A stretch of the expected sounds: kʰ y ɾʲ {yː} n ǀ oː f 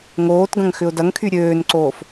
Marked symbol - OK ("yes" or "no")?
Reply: no